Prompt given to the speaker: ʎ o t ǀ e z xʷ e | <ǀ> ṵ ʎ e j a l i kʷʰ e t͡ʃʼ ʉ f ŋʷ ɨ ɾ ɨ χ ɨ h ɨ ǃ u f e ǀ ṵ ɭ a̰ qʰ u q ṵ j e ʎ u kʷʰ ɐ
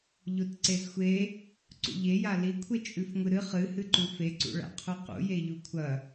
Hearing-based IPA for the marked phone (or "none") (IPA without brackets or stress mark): ǀ